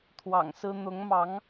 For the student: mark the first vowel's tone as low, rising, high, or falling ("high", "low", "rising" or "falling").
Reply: low